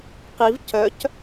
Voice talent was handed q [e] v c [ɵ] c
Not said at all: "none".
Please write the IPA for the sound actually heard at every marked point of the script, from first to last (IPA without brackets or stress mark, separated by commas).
i, œ